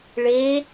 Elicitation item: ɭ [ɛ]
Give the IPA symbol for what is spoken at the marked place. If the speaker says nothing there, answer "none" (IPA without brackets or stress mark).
e